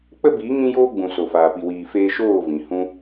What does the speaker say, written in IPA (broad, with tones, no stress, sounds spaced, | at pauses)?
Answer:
k͡p ə˦ b iː˨˦ ŋ ĩ˦ j oː˦ ɡ͡b ũ˨ s o˨ f aː˨ p i˨ w iː˨ f eː˧ ʃ oː˦˨ v ĩ˨ h ũ˧